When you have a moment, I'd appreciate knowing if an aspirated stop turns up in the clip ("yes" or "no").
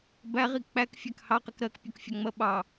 no